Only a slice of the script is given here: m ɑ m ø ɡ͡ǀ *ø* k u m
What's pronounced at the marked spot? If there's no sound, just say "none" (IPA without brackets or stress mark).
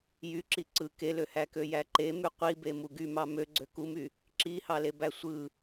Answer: ø